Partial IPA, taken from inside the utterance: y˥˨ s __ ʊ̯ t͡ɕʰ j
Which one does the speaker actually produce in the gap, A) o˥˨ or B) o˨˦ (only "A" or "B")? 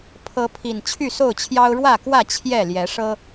A